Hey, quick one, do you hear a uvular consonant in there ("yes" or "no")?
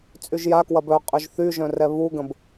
yes